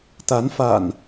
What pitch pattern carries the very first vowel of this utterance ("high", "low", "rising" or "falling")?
rising